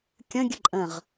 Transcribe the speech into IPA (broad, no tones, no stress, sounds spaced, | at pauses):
kʲ ə̃ ɡʲ ɨ ǃʼ ə̃ ʁ